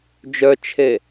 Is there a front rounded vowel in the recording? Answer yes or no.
yes